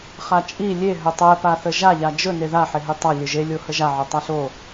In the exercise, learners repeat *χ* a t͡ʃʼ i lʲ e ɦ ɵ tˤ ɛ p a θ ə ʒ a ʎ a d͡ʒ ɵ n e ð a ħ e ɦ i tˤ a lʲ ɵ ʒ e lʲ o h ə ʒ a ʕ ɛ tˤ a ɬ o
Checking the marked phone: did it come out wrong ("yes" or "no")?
no